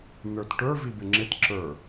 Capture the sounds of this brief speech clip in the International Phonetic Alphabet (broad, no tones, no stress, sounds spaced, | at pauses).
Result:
n ə˞ t ʈ ə˞ v i b ɪ ŋ͡ǁ ɪ t ǁ ə˞